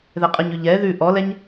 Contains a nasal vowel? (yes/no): no